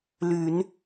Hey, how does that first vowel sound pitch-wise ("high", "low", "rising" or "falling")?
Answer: low